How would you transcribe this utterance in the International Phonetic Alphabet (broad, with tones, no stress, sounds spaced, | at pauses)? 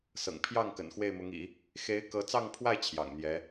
s ɤ̰˨˩ ŋ pʰ j ɑ˥˩ ŋ k ə̰˨˩ n x w e˥˩ ɪ̯ m ʊ˧˥ ŋ ḭ˨˩˦ | x e˧˥ ɪ̯ k ɤ˧˥ t͡s ɑ˥˧ ŋ pʰ w a˥˩ ɪ̯ t͡ɕʰ j ɑ̰˨˩ ŋ n̪ j ɛ˧˥